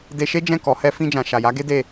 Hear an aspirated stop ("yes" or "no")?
no